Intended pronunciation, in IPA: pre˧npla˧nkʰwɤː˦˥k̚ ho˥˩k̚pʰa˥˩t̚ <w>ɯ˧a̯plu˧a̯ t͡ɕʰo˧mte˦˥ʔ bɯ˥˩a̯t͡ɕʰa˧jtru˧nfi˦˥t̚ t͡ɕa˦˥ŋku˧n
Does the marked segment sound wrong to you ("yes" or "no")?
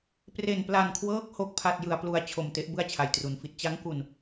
yes